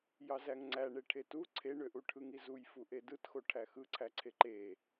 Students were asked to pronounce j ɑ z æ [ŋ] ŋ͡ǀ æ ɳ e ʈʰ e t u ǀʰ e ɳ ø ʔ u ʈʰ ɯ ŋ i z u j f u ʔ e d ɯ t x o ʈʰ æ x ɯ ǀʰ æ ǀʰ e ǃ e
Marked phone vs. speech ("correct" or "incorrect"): correct